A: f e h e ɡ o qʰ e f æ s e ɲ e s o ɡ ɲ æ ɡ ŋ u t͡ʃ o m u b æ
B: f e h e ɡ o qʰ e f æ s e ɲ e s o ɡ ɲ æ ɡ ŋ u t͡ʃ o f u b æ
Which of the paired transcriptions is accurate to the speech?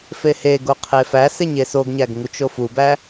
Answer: B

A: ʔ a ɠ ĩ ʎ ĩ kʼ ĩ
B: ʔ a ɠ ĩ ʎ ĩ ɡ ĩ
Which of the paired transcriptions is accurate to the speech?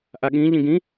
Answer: B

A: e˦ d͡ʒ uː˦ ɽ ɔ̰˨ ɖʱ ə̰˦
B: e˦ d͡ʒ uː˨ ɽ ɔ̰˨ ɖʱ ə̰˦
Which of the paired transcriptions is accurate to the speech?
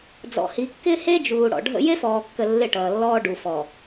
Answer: B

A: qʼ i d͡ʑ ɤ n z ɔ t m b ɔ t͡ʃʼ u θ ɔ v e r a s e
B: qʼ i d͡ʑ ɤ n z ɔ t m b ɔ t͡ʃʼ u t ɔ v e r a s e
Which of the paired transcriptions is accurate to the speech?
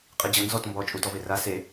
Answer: B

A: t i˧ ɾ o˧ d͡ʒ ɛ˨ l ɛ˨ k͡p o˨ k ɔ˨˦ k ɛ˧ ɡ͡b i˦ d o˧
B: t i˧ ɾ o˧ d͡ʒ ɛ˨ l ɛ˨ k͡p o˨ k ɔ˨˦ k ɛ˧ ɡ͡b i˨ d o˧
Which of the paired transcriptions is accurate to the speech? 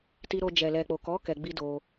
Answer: A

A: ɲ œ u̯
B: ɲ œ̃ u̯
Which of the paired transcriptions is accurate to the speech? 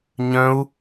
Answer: B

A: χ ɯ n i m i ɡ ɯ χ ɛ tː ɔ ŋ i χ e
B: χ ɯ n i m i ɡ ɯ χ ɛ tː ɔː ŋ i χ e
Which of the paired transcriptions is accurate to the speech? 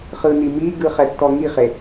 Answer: A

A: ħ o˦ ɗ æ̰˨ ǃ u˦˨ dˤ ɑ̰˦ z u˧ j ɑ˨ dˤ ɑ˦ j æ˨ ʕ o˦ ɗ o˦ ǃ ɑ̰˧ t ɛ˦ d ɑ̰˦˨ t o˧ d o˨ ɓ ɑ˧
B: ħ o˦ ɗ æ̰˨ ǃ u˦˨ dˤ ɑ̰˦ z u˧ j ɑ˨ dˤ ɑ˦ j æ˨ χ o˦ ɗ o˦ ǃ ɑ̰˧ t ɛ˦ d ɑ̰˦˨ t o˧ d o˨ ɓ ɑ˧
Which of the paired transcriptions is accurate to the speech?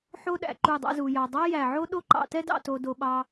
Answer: A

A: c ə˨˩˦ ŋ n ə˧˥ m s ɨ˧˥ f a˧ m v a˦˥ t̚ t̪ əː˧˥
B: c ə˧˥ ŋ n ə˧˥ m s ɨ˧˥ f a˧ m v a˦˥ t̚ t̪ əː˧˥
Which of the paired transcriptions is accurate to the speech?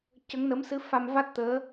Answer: B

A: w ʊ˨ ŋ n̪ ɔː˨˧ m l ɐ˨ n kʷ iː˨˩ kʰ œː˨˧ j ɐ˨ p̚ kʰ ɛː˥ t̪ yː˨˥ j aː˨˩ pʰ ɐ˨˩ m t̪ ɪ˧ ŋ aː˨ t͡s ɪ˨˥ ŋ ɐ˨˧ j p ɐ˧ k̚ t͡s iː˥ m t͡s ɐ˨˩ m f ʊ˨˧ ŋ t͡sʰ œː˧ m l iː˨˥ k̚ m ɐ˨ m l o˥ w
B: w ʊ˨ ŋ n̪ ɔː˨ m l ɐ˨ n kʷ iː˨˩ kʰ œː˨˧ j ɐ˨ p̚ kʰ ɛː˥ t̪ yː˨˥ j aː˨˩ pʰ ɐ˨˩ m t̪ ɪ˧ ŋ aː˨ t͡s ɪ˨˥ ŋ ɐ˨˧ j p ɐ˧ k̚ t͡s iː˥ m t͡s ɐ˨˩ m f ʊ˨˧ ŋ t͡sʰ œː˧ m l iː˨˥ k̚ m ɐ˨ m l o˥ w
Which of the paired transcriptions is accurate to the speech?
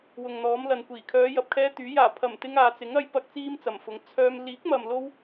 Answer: A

